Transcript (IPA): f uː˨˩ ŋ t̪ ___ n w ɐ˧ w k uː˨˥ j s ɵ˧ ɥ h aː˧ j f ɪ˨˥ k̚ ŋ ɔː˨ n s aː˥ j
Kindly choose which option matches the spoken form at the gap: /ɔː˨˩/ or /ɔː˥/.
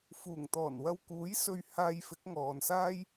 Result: ɔː˨˩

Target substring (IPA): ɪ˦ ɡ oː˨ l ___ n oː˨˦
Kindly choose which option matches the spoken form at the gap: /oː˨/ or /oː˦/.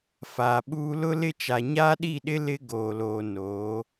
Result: oː˨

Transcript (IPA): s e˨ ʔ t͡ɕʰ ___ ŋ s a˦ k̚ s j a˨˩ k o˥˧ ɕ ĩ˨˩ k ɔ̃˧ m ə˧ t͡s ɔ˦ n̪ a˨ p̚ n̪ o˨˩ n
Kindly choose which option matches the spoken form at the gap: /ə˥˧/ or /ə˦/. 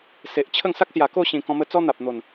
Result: ə˥˧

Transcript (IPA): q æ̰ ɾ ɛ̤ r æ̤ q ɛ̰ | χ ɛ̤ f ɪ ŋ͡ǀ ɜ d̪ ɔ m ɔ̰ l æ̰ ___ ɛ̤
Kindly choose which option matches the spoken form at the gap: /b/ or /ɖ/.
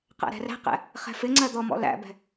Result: b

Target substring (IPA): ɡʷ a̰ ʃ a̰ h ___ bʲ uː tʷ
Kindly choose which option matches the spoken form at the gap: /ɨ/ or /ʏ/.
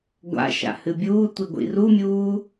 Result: ɨ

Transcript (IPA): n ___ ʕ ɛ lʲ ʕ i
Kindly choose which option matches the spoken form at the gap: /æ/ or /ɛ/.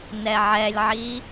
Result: ɛ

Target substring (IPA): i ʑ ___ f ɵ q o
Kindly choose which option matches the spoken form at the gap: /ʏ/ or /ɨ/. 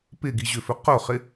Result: ʏ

